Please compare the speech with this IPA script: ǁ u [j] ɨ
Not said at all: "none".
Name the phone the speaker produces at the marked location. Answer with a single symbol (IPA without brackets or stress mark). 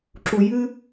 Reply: j